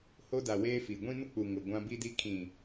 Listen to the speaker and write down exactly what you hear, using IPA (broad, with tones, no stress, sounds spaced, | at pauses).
h o˦ d a˨ w eː˦ f i˨ ɡʷ ĩ˦ n ʊ˦ k͡p u˨ ŋ ʊ˨ ɡʷ ã˦ b i˦ d i˦ kʰ ĩ˨